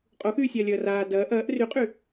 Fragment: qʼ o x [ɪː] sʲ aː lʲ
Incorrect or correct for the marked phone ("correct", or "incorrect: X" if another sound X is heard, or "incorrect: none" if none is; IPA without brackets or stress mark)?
incorrect: yː